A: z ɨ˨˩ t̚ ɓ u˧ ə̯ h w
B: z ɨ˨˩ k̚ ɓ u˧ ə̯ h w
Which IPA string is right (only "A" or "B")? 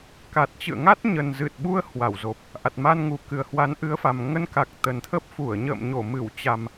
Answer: A